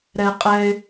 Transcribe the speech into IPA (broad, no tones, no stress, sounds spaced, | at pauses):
ɾ ɛ qʼ ɛ ɪ̯